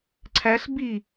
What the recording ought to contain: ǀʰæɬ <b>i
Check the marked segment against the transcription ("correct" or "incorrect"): correct